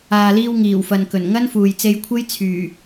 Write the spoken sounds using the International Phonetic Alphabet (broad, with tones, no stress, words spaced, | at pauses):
aː˨liː˧w ŋiː˨˩wfɐ˨nkɵ˨˩n ŋɐ˥nfuː˨jt͡se˧jkʷʰe˥j t͡sʰyː˨˩